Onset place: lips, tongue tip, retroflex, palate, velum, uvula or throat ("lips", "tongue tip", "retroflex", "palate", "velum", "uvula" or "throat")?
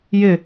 palate